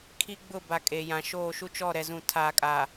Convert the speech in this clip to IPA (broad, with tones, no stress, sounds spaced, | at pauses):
kʰ i˦ ɡ͡b ʊ˦˨ b a˨ kʼ e˨ j ã˨ ʃ oː˦˨ ʃ u˦ t͡ʃ ɔ˦˨ ɾ ɛ˨ z ũ˨ tʰ aː˨ kʼ a˨